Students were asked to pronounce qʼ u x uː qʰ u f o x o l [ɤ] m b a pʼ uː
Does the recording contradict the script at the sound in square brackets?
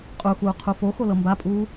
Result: no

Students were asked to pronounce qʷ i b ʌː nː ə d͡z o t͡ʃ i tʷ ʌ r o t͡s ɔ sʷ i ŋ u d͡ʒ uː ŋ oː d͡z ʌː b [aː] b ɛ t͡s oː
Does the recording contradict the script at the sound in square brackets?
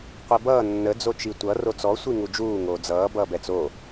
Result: yes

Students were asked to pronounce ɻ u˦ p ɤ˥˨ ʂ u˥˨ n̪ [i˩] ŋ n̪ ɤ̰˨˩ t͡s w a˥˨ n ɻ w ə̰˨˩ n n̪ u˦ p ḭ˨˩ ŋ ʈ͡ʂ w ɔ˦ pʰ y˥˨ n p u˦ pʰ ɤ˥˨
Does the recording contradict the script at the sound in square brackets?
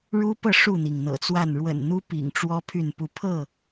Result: no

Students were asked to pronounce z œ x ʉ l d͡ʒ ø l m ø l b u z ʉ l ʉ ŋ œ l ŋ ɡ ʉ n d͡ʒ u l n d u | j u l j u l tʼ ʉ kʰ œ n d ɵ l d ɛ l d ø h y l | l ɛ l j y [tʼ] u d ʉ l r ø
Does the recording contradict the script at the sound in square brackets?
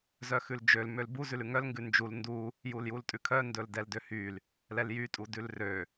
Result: no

